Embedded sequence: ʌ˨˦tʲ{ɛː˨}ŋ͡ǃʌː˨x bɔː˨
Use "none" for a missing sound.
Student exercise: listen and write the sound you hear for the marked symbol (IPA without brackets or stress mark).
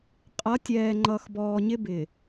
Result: ɛː˨